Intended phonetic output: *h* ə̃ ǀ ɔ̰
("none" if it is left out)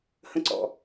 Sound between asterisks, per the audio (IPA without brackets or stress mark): h